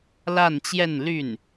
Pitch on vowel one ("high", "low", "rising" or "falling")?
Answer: falling